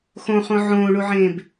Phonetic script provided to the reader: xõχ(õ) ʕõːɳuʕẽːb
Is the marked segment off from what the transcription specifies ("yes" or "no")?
no